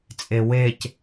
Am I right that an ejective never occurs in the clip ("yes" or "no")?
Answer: no